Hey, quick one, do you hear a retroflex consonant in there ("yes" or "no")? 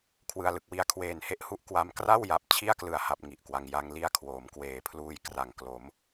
no